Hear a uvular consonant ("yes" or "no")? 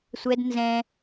no